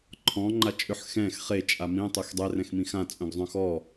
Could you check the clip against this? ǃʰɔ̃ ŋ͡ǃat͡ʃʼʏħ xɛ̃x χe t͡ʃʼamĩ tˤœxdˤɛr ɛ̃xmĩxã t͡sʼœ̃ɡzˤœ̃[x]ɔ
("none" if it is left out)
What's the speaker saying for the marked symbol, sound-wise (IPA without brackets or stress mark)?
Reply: x